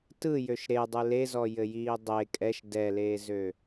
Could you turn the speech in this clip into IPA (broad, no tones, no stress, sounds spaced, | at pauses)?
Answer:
t ɯ j ø ʃ ɾ e dˤ ɯ l e z ɔ j ɘ j iː dˤ e kʼ ɛ ʃ d ɛ l eː z ø